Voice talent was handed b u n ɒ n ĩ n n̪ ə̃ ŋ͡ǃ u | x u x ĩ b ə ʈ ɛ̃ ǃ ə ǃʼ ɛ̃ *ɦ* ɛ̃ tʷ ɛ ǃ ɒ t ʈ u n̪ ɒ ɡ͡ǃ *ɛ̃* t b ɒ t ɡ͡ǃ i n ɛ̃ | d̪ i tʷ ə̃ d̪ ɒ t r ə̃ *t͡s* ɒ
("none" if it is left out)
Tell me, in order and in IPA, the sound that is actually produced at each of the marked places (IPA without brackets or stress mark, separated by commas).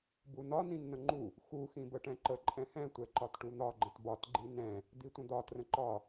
h, ə̃, ǃ